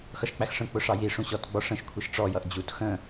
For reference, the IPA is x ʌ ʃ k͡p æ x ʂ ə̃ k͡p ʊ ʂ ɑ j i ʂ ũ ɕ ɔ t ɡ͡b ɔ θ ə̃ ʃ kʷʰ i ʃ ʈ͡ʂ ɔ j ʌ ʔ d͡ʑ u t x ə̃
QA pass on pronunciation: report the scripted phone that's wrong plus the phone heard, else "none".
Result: θ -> ʂ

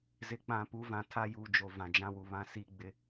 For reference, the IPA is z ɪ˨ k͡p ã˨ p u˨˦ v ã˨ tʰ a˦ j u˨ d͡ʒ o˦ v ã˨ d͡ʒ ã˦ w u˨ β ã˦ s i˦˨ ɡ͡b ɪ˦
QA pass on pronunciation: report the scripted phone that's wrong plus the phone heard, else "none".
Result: o˦ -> o˨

